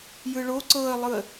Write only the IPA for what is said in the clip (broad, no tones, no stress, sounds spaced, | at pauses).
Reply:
j ɯ ɭ o ǀ ɤ ə̯ lˠ ɯ ə̯